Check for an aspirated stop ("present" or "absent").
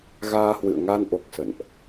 absent